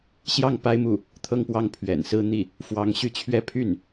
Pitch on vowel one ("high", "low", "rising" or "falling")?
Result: falling